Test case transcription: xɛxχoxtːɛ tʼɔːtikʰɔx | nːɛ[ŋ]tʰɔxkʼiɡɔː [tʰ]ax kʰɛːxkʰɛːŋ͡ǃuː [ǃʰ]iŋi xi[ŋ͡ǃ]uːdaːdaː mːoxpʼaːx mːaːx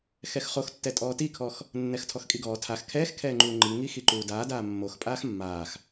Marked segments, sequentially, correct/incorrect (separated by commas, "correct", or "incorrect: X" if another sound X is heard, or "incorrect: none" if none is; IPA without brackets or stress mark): incorrect: x, correct, incorrect: ŋ͡ǃ, incorrect: ǃ